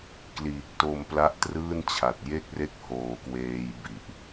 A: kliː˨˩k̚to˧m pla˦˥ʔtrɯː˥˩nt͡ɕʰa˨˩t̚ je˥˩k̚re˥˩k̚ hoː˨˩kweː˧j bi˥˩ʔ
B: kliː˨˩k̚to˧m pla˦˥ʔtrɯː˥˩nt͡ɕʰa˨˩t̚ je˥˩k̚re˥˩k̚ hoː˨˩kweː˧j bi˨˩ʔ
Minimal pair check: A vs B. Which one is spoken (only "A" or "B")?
B